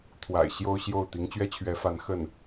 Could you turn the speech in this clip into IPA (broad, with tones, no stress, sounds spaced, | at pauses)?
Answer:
t̪ʰ w a̰˨˩ ɪ̯ ɕ j o˥ ʊ̯ ɕ j o˥˩ ʊ̯ t̪ i˧˥ ŋ t͡ɕ ɥ ɛ˥ t͡ɕʰ ɥ ɛ˧˥ f a˧˥ n x ə˥˩ n